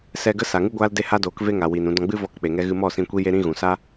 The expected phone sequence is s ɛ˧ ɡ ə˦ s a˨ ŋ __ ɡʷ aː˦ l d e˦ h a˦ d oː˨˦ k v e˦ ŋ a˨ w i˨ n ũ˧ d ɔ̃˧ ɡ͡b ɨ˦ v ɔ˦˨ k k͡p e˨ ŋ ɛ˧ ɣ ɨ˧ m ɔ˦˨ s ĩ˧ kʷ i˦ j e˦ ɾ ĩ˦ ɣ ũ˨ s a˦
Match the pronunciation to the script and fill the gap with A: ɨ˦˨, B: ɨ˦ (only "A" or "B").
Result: B